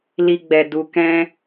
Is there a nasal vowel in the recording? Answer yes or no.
yes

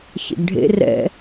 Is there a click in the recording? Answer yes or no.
no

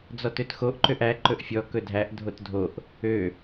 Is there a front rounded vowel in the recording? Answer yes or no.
yes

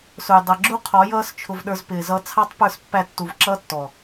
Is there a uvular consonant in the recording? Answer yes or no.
yes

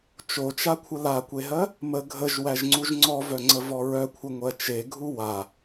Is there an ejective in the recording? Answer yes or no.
no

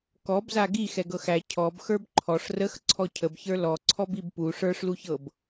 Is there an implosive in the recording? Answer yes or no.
no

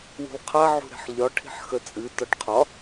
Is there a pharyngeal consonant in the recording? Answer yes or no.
yes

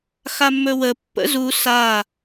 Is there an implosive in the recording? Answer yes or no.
no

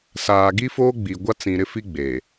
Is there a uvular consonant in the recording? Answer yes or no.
no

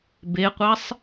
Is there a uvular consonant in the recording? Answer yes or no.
yes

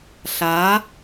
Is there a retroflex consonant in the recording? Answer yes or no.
no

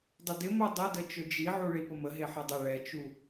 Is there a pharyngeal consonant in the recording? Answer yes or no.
yes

